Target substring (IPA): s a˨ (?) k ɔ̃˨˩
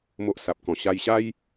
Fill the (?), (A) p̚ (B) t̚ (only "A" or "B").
A